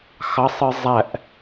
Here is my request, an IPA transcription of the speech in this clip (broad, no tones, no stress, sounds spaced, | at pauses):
x ɑ sˤ ɯ zˤ æ ʔ